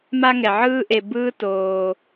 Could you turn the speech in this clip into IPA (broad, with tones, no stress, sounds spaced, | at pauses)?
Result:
m a˥ ŋ ɛ˩ ʕ ɯː˥ ʔ e˨ b ɯː˦ t oː˩